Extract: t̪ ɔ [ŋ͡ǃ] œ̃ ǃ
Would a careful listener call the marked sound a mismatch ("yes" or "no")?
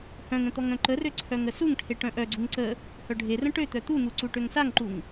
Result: yes